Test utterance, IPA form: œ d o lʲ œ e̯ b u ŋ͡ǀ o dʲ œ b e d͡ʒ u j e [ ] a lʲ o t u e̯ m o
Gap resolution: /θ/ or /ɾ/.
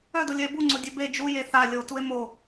θ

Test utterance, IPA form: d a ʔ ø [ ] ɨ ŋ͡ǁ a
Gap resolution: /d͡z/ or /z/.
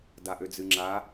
d͡z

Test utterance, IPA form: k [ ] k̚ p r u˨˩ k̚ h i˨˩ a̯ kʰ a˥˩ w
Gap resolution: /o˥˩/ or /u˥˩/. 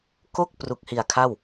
o˥˩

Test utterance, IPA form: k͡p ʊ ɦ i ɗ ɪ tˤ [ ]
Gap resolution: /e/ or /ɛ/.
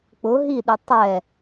ɛ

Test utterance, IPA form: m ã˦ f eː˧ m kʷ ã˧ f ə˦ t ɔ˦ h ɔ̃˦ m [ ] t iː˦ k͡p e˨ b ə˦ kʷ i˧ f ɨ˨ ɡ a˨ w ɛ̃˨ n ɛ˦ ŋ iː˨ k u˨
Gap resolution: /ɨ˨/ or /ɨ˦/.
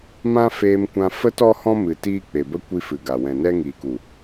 ɨ˨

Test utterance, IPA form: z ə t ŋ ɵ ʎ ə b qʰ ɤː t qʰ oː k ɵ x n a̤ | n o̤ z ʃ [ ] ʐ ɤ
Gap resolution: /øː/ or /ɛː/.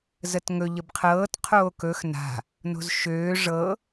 øː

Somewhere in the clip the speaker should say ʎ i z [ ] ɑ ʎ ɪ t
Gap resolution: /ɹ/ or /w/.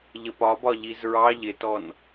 ɹ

